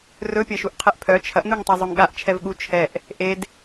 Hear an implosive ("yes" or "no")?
yes